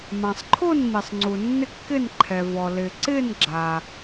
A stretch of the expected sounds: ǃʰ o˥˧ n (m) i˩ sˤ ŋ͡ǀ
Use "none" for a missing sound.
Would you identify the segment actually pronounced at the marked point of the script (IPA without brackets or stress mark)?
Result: m